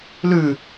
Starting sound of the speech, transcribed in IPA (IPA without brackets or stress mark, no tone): l